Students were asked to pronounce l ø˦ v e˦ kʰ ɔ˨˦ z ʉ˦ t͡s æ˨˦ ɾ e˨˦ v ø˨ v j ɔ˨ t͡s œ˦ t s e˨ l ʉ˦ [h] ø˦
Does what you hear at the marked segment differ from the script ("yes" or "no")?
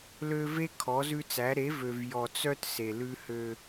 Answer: no